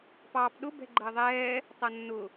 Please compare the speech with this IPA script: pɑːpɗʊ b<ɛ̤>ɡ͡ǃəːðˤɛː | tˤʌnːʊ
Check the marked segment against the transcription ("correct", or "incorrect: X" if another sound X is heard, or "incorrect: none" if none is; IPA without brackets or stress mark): correct